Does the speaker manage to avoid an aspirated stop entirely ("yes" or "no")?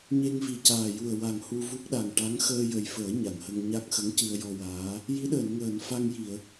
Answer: yes